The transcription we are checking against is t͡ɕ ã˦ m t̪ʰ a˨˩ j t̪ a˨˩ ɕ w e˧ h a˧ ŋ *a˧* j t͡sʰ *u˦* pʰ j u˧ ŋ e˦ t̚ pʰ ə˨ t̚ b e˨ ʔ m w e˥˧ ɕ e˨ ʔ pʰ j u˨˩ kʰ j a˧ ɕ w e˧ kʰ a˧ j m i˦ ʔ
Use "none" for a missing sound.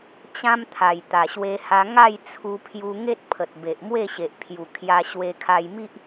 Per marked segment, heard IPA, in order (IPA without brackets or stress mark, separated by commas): a˥˧, u˧